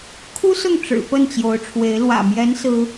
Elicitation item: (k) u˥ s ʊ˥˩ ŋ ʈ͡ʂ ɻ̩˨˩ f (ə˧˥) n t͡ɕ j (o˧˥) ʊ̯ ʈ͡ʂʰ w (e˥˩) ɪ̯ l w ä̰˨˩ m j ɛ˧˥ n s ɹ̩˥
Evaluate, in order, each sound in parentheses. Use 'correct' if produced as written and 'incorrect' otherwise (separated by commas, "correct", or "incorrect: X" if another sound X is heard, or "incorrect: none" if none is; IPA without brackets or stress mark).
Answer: incorrect: kʰ, incorrect: ə˥˩, correct, incorrect: e˧˥